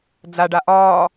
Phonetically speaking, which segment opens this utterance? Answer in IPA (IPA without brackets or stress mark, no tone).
d͡z